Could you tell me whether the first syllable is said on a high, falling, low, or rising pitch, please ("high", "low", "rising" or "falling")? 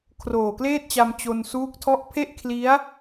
low